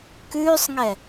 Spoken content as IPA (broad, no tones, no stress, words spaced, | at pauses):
kʉːsˤŋɛ